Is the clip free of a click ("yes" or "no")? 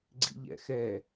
no